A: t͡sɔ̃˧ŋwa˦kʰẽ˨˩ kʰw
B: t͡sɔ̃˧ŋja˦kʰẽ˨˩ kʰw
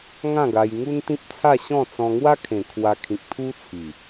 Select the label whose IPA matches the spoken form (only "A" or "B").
A